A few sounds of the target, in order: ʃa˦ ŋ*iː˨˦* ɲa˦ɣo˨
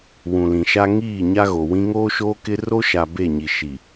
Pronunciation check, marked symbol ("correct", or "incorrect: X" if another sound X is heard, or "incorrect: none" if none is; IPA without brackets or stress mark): incorrect: iː˦˨